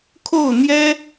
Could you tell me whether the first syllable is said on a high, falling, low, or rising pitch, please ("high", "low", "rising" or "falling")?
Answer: falling